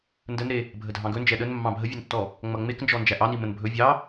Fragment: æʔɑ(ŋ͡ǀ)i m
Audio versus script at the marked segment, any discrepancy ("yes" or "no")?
yes